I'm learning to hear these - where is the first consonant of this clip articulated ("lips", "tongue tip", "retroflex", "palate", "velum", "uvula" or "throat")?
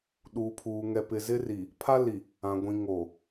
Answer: tongue tip